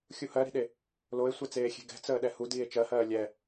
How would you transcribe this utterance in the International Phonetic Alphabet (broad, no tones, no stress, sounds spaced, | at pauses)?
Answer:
xʲ u h ɜ ɾ i̤ ɗ e | l o e̯ sʷ ɛ t͡s eː xʲ e̤ ɡ ɛ̤ t͡s əː ɗ ɛ h u d iː e̯ t͡ʃ ɜ h ɜː lʲ ɛ